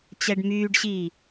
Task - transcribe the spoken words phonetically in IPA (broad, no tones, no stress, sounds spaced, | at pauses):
t͡ɕ ɛ ɖ m yː ɖ ɕ iː